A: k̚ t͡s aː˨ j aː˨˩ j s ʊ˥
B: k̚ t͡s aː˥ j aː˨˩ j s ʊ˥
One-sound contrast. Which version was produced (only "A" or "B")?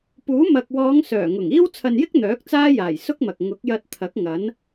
B